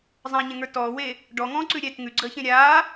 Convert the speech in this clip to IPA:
zˤ ã ɲ ẽ ŋ ə˞ t ɔː w e | ɖ ɔ ŋ ɔ̃ː ǀ ʉ ɾʲ ɛ t ŋ ʉ ɡ͡ǀ əː ç ẽ ɾʲ aː

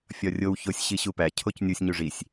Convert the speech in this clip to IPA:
fʲ ɒ rʲ o w ç o sʲ ɕ i ɕ u p æ cʰ o c nʲ u sʲ ɲ u ʐ i sʲ

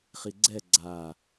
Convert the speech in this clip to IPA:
χ i ɡ͡ǀ ɛ ɡ͡ǀ a

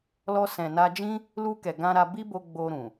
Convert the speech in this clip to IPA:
l ɔ˧ s ɛ̃˨ n a˧ d͡ʒ ĩ˦ | l u˧ k ɛ˨ ɡ ã˧ ɾ a˧ b i˦ b o˧ ɡ͡b o˧ ɾ ũ˨

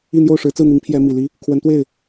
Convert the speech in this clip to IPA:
i˥˧ n̪ j o˥˩ ʊ̯ ʂ ɻ̩˧˥ t͡s ɹ̩˥˩ n̪ i˧˥ ŋ pʰ j ɛ˥ m i˨˩ l i˥ | kʰ w ə˧˥ n t̪ w e˥˩ ɪ̯

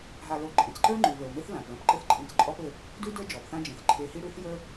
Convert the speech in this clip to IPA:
ɦ a˨ l o˨ ǃʼ ẽ˩ t͡s ǃ ə˞˦ ŋ͡ǃ ʉ˩ v ə˞˩ w m e˦ θ l ã˩ p l ɐ̃˦ p ǃ ɘ˦ θ ǃʼ ĩ˨ t͡s ǃʼ ɔ˦ p ɘ˨ | d ʉ˦ d ə˞˥ d͡ʒ ɔ˩ p θ ã˦ d͡ʒ ẽ˩ θ ǃʰ e˨ h i˦ ɽ ʉ˥ θ j ə˞˥

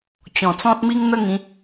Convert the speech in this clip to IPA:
t͡ɕ ɔ̃˨˩ t͡s ɔ̃˦ t̚ m i˦ ŋ n̪ ə˦ ŋ ĩ˨˦

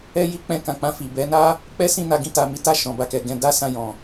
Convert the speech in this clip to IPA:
ɛ˦ j i˦ k͡p ɛ̃˧ k ã˨ k͡p ã˧ f i˨ b ɛ˨˦ n a˦ | k͡p ɛ˦ s ĩ˦˨ n a˧ ɡ ĩ˧ t a˨ m i˨˦ t a˦˨ ʃ ɔ̃˨ b a˧ k ɛ˨ ɡ ɛ̃˧ d a˦ s ã˧ j ɔ̃˨

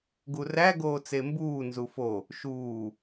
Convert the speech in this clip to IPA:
ɡ u r æ ɡ oː t͡s e m b uː n z u f o | ʃ uː

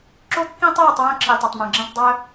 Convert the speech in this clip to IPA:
ǁ o˦ kː ĩ˦ tˤ ɤː˦˨ tˤ w œ̃˦˨ ǁʰ i˨ tˤ ɤ˨ tˤ m œ̃˨ ɡ͡ǁ ĩ˦˨ tˤ dˤ œ˦

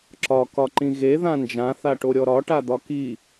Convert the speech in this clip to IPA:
ǁ ɒ k ɒ ǃ ĩ ɣ e ð ã n d͡ʒ ã θ a ʈ o ɾʲ ɔ ɾ ɒ ʈ a d̪ ɒ k i

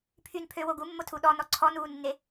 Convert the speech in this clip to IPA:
pʰ y n pʰ ø w o ɡ u mː o tʰ u ɗ ɔ n ɔ ǀʰ ɔ n uː nː e

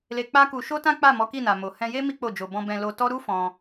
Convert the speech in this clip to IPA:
l e˧ k͡p a˦ k u˧ ʃ o˦ t ã˦ k͡p a˦˨ m ɔ˨˦ k i˦˨ n a˨ m o˨ h ɛ̃˧ j e˦ m i˦ k͡p o˦˨ d͡ʒ o˧ b ɔ̃˧ b ɛ̃˧ l o˧ t ɔ˦ ɾ u˦ f ɔ̃˧

